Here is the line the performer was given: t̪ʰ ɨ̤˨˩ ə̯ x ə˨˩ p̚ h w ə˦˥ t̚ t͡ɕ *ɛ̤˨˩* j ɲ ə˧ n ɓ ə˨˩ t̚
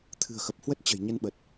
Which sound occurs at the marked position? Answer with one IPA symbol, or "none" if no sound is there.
ə̤˨˩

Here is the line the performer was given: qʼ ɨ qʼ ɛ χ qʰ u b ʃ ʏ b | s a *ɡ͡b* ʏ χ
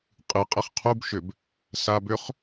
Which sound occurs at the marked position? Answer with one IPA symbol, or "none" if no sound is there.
b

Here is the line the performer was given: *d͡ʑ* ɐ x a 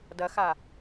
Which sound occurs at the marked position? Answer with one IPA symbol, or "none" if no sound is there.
d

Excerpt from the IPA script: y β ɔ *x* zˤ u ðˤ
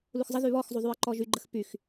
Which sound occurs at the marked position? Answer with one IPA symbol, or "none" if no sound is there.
x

